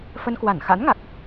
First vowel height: mid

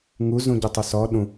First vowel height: high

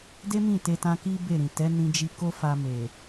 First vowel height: mid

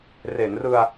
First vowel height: mid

